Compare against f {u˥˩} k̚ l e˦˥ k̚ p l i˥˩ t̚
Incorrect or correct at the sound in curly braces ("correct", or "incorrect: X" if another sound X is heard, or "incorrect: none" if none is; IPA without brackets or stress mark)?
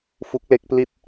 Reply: incorrect: u˦˥